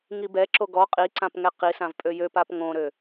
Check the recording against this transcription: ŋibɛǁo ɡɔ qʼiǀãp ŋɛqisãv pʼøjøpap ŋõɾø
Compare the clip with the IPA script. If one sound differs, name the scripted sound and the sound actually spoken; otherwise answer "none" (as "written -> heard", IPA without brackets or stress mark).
none